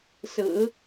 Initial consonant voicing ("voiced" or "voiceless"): voiceless